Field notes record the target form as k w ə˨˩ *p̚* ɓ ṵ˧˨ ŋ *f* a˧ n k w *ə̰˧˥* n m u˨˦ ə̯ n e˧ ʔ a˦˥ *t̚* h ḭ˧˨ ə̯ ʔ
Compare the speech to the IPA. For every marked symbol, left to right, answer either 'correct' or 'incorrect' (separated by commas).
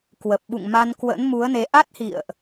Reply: correct, incorrect, correct, correct